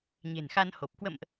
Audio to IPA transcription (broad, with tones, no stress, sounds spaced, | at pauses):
ɲ e̤˨˩ n x a˧ n h o˨˩ p̚ k w ə̰˧˨ m ʔ